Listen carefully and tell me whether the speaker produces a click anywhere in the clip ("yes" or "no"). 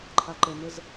yes